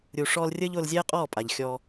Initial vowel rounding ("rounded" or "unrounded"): rounded